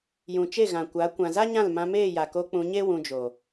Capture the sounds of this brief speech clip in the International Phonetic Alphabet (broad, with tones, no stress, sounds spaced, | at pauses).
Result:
j ũ˨ t͡ʃ e˦˨ ɣ ã˨ kʷ a˨˦ kʷ ã˨ z a˦ ɲ ã˦˨ l m ã˧ m eː˦˨ j a˨ k o˧ k͡p ũ˧ ɲ e˦ w ũ˧ d͡ʒ o˨